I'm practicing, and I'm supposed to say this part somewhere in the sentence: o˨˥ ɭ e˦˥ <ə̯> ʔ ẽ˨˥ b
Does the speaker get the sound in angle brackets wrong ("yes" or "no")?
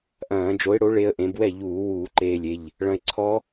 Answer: no